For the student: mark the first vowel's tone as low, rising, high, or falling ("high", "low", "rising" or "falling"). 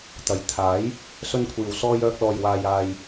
low